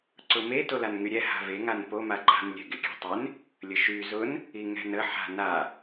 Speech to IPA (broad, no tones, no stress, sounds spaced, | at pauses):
ǀ ʊ m e t o l a n ŋ y ɾʲ ɛ h a̤ v e ŋ a n p o m a ǃ a̤ n lʲ ɛ̤ ɡ e kʲ ɛ̤ tˤ e n | lʲ ə ʃ y z ʊ n | i ŋ ɛ̤ n ə ħ a̤ n a